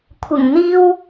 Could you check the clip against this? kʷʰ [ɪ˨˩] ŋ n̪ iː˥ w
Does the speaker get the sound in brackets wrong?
no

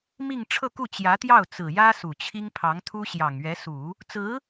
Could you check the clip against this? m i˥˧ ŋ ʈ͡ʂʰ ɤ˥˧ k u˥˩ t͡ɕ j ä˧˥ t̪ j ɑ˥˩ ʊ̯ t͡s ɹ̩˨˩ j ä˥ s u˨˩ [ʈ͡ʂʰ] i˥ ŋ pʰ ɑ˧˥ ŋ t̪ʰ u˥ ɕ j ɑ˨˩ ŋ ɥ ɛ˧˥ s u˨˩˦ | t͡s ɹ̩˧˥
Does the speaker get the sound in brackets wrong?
yes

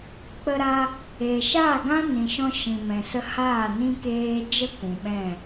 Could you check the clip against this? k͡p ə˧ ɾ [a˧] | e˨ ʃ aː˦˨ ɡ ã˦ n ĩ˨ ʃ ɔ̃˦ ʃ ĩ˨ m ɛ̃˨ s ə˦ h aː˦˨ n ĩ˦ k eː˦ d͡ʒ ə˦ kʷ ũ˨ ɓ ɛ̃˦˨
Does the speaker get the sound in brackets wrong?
no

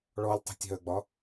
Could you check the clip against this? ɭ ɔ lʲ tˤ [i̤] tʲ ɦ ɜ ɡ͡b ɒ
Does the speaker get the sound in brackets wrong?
no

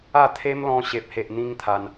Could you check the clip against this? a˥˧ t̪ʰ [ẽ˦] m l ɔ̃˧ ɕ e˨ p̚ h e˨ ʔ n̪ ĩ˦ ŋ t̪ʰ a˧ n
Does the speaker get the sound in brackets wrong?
yes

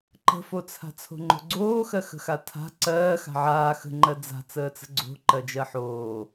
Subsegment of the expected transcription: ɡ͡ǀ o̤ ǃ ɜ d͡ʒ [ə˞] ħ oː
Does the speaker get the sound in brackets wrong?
yes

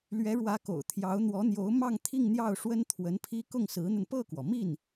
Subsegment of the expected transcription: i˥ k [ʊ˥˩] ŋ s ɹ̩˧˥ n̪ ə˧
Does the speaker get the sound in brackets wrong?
no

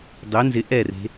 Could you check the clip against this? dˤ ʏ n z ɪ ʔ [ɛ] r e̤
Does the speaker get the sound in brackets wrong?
no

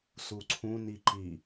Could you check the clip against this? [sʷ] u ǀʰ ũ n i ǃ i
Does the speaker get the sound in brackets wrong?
yes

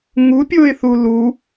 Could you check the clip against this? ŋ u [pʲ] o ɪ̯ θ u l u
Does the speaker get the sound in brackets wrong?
no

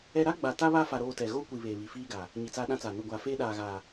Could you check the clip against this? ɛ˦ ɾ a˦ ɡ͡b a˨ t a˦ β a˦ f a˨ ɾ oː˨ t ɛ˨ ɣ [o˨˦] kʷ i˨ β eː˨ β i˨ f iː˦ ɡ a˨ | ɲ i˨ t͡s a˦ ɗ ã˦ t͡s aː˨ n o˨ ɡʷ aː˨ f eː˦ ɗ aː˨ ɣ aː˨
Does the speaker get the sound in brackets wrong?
yes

